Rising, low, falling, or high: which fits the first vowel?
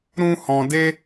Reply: high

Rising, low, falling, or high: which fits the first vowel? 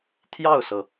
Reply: falling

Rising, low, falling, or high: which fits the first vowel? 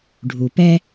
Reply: low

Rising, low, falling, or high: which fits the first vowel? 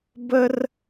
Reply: high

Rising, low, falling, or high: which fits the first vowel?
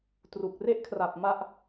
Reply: low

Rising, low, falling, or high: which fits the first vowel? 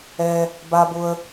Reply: high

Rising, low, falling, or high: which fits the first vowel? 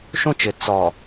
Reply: high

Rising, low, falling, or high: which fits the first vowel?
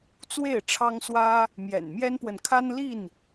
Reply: falling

